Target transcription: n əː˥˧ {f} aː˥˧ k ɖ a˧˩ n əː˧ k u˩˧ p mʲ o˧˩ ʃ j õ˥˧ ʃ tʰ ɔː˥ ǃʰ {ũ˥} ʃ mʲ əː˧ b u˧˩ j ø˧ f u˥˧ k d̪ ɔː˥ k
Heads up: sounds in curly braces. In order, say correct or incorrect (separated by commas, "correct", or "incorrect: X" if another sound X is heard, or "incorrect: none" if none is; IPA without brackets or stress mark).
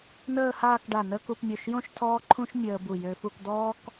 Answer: incorrect: h, correct